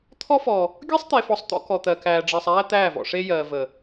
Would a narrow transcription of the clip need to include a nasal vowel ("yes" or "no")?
no